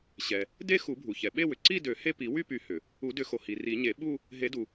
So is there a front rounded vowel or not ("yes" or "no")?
yes